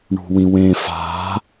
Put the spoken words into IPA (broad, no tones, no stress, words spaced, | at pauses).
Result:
ɳṳwĩwẽ fa̤